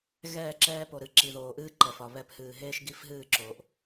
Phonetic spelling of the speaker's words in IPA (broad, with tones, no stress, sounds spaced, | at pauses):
ɣ ɛː˦˨ ǁ ɛː˦ p o˨ ɾ ɨ˨ ǁ i˨ ð oː˨ ʔ ɨː˦ ǃ ɛ˨ f ɒ˨ β ɛ˨ p h ɨː˨ ɦ eː˦ ʃ ɡ i˦ f ɦ ɨː˦˨ ǁ oː˨ ʔ